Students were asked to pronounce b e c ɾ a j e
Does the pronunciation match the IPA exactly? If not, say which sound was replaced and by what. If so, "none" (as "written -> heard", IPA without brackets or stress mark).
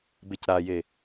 none